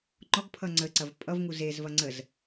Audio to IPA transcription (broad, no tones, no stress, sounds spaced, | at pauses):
ŋ͡ǃ ɔ ɡ pʰ ʌ ŋ͡ǀ ə ǀ ɐ v pʼ ʌ v ŋ u z e z v ɐ ŋ͡ǀ ə z